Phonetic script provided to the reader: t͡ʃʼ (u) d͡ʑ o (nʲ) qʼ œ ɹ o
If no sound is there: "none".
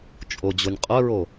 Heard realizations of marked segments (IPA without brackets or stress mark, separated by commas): o, nʲ